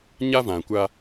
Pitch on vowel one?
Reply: high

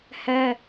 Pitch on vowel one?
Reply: high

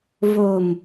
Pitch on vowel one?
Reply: low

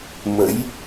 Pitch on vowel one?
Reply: rising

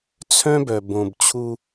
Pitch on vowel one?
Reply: high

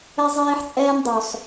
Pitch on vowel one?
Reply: high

